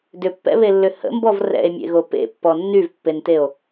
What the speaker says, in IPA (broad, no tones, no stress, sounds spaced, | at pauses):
d ʏ pː ɛ̰ β e lː ʏ h ə̰ m b ɔ v r ɛ̰ e̯ mʲ ḛ ɣ o p ḛ pː ɔ nː y v pː e n t e o̯